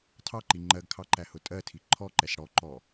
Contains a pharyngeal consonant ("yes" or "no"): no